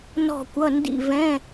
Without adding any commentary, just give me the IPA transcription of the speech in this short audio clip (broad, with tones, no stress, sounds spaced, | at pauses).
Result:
n ɔ̤˥˧ kʷ ʌ˧˥˧ n d ḭ˥˧ v ɛ̃˧˥˧